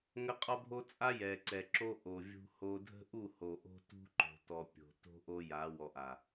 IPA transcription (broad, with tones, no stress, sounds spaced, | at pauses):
ŋ ə˦ qʼ ɔ˦ bʱ o˦ t͡sʼ a˦ j ɛ˨ ǀ ɛ˨ ǁ o˦ ʔ o˨ vʲ ṳ˦ h o˦ dʱ ə̤˦ ʔ u˦˨ h o˨ ʔ o̤˦ t ṳ˦ ǃ o̤˨ t ɔ˨ pʲ o̤˨ t o̤˦ ʔ o˦ j a˨˦ w ɔ˨ ʔ a˨